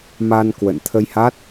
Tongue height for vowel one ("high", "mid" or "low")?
low